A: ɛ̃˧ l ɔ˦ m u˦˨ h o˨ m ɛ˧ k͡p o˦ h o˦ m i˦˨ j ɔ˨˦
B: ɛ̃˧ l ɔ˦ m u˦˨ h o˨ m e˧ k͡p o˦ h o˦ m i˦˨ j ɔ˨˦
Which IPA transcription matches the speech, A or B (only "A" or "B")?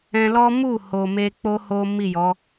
B